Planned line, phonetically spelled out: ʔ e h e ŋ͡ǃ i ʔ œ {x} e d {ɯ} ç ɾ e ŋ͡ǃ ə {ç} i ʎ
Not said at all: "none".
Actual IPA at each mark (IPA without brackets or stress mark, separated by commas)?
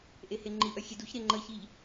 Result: xʲ, u, ç